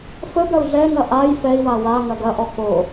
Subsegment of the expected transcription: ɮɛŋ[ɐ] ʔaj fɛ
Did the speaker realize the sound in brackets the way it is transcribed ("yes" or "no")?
yes